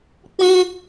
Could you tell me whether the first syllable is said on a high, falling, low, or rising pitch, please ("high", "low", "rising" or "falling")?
high